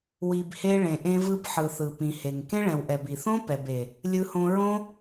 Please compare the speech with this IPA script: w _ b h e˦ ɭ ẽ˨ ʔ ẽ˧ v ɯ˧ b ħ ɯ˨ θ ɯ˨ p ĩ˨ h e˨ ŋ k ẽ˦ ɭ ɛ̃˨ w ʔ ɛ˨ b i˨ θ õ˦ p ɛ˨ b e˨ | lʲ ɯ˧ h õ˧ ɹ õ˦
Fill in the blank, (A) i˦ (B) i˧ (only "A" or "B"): B